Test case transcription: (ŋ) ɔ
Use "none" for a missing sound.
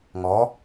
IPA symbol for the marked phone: ŋ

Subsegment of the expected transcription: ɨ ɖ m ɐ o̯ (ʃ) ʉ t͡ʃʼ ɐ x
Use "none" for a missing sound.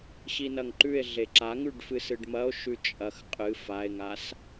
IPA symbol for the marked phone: ʃ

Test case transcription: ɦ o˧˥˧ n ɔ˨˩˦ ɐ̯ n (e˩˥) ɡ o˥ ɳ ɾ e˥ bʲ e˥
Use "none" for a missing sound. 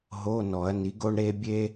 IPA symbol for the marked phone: i˩˥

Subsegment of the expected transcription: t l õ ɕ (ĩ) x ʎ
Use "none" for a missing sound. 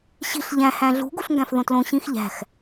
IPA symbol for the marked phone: ĩ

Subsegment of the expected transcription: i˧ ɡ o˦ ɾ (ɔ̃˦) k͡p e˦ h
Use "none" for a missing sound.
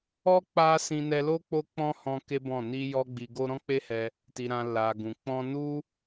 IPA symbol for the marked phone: ɔ̃˦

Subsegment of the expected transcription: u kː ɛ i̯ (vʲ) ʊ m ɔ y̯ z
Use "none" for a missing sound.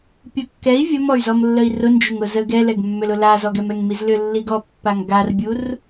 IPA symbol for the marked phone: vʲ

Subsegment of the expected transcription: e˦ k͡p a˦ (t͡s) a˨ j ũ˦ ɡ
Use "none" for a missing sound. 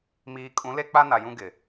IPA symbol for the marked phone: n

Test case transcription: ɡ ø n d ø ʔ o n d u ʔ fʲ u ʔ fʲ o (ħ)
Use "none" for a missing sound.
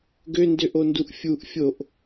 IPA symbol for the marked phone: ʔ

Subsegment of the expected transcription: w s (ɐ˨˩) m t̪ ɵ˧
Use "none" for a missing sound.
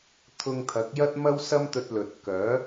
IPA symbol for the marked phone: ɐ˥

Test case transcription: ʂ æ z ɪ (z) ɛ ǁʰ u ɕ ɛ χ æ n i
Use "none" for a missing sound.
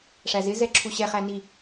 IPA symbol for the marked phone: z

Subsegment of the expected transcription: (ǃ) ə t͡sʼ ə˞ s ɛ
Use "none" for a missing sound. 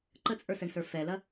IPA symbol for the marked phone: ǃ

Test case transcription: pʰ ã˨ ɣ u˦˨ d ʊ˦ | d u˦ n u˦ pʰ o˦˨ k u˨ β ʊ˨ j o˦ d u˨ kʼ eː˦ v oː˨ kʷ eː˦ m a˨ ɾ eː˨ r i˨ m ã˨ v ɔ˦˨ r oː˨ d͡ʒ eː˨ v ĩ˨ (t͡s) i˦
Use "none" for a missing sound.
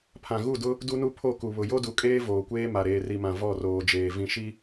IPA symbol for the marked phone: ʃ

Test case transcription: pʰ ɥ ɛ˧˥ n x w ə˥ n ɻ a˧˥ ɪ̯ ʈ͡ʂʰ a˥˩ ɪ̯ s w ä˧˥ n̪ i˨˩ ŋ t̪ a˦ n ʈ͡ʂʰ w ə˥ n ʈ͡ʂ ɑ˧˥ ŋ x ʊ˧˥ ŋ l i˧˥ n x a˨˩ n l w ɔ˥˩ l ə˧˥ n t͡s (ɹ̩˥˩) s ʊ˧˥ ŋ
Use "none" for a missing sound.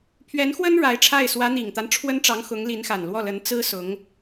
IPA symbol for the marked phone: ɹ̩˥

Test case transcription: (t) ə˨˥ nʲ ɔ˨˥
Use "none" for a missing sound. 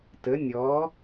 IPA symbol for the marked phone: t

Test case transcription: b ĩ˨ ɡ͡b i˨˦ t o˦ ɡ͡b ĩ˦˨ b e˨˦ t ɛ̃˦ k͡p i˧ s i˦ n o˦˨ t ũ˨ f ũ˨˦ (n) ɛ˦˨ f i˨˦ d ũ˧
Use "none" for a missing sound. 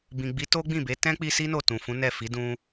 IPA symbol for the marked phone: n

